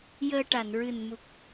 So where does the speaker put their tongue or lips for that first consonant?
palate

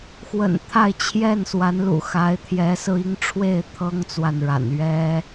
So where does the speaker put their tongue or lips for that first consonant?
velum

